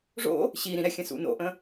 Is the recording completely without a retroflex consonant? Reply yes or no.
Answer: no